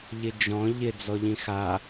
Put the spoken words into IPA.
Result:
ʎɪd͡ʒɔ̃ ʎɪ d͡zɔʎĩxa

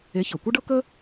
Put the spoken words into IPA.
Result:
e˨˥çɤ˩kʷɐ˥ɖɤ˥ kə˥

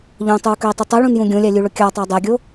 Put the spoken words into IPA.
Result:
ʎõtˤʉu̯køi̯tˤʉ tˤiɭũnjũ ɡʲõlʲælʲʉɭɵ kʲɑtˤæ dˤɛɡʲo

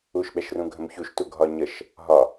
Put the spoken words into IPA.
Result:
uʃɓɛʃrũ ɡʱə̃mçuʃtu ɡʱɒɲəʃ | ɦɒ

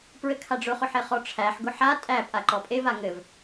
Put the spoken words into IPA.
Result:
pɹɘkʰaɖ͡ʐʊχʊ ħeχɔʈ͡ʂʰæħ ɡʊħa tʼæpʼa ǃɔpʼeva ŋɘv

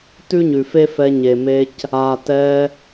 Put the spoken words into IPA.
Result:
tʉ˦ɲʉ˨fe˦fɛ˧ ɲe˨me˧c | a˨tɛ˧

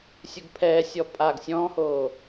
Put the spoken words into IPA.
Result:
sʲuɡpʰɛːsʲɔ pʼaɡ sʲɔ̃ːhoː

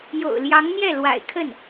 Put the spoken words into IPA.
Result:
jo̰˨˩ʊ̯ljɑ˧˥ŋn̪jɛ˥˩lwa̰˨˩ɪ̯ kʰə˥˩n

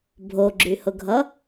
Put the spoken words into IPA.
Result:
bʱoɡ͡ǁyhʊɡʱʌ

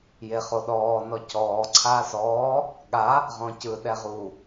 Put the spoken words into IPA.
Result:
jeχoɗɔː nɔcɔː ǀʰaːsɔː | ɠa | ʁɔ̃cɯ ɗɛʁu

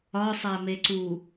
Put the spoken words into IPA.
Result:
ɒsˤæme ǀu

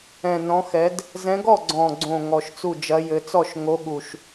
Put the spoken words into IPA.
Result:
ɛ̃˨˩ nɔ̃˨˦xɛ˨˦d | zɛ̃˨˦ɡɔ˥˩ɡ͡ǀɔ̃˨˩ɡ͡ǀõ˨˩ ŋɔ˨˩ʃt͡su˥˩ d͡ʒɐ˨˦jɘ˨˦t͡sɔ˥˩ʃ ŋo˨˦ɠu˨˩ʃ

